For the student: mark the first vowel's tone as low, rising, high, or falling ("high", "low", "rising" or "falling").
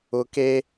low